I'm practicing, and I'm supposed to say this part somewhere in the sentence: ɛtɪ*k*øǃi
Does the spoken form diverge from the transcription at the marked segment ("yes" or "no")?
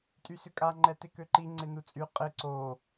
no